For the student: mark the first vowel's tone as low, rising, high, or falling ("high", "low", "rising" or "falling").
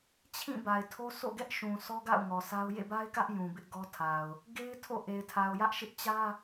falling